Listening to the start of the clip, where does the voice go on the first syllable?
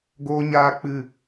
high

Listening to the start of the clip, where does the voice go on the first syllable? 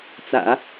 low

